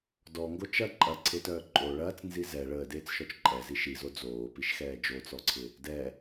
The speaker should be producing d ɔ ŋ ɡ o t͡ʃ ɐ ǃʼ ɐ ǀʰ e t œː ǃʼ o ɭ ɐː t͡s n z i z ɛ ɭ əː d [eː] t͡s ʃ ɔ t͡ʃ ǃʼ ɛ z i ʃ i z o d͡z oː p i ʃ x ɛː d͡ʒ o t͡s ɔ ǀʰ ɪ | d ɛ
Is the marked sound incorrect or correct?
correct